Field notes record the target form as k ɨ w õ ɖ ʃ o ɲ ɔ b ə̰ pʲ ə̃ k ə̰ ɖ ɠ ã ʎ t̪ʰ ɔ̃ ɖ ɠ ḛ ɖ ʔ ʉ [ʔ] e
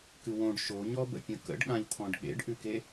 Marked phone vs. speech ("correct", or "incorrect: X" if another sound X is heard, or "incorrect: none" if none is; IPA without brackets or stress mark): incorrect: k